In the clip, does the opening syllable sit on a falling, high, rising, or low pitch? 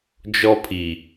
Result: high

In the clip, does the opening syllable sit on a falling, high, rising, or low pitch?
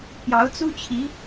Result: rising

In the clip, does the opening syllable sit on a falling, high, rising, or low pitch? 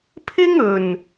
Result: high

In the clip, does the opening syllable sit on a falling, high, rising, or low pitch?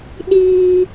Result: high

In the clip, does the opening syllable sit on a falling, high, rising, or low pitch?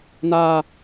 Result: high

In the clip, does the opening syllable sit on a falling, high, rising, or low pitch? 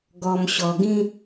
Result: low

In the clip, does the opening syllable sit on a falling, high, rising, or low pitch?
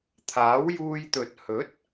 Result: rising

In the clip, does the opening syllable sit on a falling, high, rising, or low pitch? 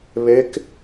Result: rising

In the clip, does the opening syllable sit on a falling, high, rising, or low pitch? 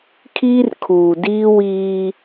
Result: high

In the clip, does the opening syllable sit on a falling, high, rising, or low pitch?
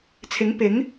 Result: rising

